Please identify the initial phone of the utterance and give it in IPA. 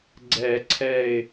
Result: ɡ͡ǀ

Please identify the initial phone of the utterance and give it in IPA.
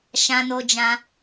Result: ʃ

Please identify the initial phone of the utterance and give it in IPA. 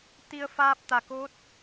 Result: t̪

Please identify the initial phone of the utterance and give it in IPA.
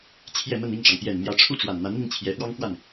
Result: t͡ɕʰ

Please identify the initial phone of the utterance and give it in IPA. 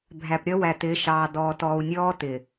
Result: bʱ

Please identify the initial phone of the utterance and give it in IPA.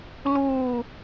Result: l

